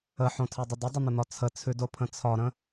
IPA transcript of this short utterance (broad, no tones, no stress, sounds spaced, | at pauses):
ə ħ õ tʰ ɛ dˤ ə d ə dˤ ə n̪ ə n̪ ɒ t͡sʰ ə t͡sʰ ʉ d o pʰ ə̃ t͡sʰ ɒ ɾ ə̃